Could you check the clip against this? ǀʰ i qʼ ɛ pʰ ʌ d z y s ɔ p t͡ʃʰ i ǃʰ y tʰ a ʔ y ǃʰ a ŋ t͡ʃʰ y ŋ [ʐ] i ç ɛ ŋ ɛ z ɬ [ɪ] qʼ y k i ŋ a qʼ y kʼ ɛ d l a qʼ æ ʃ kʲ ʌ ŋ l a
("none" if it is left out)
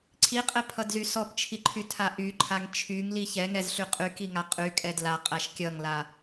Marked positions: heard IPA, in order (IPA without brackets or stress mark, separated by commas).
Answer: l, y